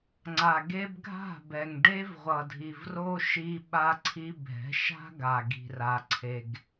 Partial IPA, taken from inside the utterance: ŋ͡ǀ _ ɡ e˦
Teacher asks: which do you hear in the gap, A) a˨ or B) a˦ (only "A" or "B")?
A